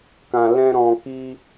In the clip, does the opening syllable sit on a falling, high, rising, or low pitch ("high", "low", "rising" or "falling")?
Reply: low